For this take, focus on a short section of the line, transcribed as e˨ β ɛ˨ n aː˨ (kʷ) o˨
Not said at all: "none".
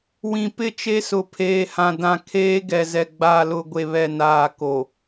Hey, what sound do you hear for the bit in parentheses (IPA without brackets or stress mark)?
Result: k